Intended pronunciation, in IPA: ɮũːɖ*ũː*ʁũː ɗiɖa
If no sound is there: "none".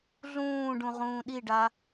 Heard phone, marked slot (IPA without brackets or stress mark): ũ